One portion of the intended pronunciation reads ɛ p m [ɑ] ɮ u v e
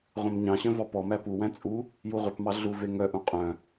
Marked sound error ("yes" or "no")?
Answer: no